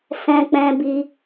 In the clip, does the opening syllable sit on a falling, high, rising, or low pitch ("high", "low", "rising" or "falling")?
high